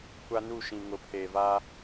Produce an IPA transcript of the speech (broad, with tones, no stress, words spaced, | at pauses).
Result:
kʷa˦nu˦˨ʃĩ˨ ŋʊ˨pʰeː˨ va˦